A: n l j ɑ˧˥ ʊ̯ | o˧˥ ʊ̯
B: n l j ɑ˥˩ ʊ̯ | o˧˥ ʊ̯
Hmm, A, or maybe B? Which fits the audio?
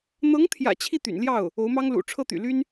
B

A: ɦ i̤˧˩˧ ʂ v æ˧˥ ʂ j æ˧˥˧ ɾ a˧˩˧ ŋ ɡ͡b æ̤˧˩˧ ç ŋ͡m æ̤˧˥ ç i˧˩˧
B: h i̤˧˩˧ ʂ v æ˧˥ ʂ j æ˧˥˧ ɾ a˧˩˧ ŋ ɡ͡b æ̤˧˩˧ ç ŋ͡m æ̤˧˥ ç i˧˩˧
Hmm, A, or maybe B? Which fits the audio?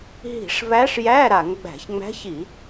A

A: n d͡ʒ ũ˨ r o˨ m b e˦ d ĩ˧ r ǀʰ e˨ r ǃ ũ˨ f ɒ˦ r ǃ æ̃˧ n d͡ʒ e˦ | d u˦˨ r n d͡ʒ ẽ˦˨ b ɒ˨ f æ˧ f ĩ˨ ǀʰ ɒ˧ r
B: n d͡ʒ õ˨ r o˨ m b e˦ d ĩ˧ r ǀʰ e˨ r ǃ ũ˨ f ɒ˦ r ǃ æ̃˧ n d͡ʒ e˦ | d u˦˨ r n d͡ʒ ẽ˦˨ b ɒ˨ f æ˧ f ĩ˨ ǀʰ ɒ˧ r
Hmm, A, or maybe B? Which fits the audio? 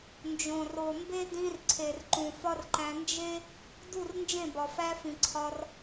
B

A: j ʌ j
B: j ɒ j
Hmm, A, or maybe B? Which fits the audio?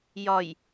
B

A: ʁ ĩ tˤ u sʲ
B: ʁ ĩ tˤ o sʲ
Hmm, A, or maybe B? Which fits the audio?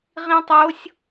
B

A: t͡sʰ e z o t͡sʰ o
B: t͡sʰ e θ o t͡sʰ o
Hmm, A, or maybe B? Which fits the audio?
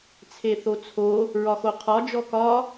B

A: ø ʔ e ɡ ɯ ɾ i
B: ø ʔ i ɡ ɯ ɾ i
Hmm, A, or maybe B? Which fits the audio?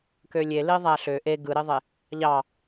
A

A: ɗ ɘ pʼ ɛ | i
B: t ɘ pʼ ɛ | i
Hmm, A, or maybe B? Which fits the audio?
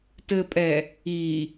B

